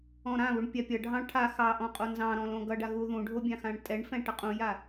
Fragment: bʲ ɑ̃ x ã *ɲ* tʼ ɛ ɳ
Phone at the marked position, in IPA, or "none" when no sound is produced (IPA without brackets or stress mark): ɳ